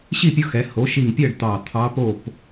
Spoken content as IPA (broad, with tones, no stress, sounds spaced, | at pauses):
ɕ i˥˨ pʲ o˧˥ x ɛ˩˧ h o˩˥ ʃ i˧˩ ŋ pʲ ɜ˥˨ ɖ t̪ ɑ˧˩ t̪ʰ ɑ˧˥ p o˥˨ p